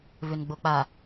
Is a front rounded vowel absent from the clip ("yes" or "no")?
no